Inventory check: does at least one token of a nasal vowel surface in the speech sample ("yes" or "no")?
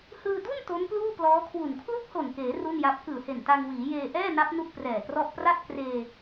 no